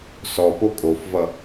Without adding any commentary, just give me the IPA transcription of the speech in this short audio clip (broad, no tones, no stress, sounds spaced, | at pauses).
s ɔ p o kʼ o f v ʌ